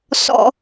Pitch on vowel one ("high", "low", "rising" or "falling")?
high